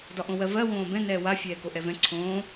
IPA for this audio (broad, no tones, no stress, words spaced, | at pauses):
dɒʔõwɜvɜ wõːbɛ̃ nɛːwa fʲɛːkoʔɛvɛ̃ ǀʰõː